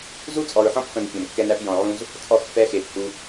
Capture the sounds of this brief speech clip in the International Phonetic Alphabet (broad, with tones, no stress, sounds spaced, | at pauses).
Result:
z u˦ t͡sʼ ɔ˨ ɹ ħ ɔ̃˦ p f ə̃˨ n fʲ ɔ̃˨ m kː ɛ˦ n æ˦ p j ɔ̃˨ ʕ ũ˦ z | t͡sʼ ɔ˦˨ x f ɛ˦ x e˨ p h u˦